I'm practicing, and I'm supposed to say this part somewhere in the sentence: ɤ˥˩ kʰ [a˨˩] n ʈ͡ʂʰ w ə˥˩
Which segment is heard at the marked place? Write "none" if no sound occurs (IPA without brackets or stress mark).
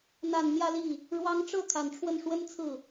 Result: a˨˩